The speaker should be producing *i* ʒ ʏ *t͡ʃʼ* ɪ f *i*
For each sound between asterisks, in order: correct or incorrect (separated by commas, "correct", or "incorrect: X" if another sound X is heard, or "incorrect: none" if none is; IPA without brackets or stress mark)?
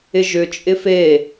incorrect: ɪ, correct, incorrect: e